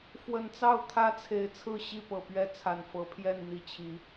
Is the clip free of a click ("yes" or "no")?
yes